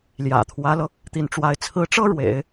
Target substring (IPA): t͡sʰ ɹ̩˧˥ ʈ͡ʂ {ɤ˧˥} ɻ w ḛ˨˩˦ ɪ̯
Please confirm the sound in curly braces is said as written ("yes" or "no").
no